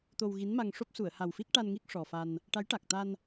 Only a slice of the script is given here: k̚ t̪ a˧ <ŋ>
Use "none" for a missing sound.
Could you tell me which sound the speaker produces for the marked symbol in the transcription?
n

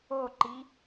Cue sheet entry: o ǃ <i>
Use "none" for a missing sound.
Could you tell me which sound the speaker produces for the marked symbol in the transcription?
i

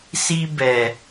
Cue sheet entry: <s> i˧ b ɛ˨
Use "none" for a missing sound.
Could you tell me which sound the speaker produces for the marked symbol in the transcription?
s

